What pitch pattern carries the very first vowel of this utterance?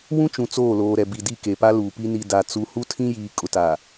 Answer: high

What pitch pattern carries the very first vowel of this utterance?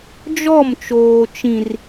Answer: falling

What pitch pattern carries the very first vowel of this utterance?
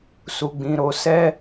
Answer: low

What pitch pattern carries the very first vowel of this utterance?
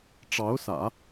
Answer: rising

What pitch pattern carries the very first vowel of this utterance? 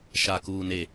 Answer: low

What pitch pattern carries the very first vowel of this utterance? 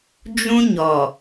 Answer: high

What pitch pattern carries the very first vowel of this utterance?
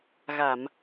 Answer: low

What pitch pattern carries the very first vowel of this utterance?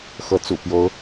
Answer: rising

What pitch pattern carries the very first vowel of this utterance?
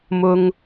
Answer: high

